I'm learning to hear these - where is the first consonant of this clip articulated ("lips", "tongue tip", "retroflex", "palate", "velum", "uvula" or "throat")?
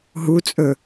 throat